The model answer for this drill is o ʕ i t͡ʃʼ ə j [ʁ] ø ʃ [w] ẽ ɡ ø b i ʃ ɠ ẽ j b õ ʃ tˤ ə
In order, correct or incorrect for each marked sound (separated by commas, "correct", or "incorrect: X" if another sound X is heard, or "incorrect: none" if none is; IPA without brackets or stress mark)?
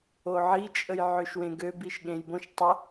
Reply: incorrect: ʕ, correct